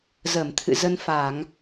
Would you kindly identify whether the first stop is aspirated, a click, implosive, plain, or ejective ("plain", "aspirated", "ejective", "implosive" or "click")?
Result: aspirated